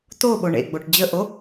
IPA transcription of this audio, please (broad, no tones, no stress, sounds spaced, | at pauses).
t o ɓ o ɳ ḛ ɡ͡b o ʈ d͡ʑ ə ʔ o